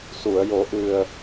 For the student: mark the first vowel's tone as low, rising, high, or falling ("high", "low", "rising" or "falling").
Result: low